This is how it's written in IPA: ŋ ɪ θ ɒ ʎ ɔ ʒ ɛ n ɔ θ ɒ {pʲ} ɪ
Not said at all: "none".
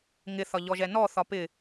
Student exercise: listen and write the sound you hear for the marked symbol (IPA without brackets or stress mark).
p